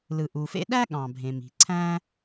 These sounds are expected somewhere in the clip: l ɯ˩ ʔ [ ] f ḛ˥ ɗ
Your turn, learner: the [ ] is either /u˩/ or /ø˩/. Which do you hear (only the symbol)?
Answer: u˩